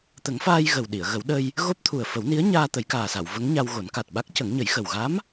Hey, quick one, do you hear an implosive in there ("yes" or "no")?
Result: yes